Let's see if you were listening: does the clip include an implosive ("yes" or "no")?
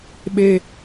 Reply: yes